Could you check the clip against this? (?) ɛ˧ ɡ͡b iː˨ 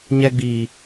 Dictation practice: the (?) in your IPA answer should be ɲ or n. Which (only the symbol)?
ɲ